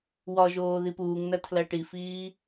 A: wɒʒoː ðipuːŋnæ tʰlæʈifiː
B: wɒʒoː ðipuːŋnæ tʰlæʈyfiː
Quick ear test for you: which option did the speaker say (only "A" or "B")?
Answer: A